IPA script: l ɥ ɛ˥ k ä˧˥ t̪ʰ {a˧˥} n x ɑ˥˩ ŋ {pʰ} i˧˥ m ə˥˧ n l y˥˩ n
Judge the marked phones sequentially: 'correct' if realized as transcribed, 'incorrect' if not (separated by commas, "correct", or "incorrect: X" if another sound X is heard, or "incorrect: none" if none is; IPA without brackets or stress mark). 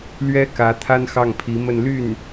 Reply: incorrect: a˥, correct